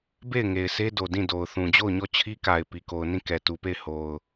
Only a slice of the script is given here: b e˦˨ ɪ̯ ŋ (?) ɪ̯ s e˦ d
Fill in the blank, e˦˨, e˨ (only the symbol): e˨